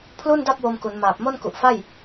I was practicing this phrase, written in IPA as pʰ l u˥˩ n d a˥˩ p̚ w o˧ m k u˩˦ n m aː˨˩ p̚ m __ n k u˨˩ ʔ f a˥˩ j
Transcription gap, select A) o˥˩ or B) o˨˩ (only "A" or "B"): A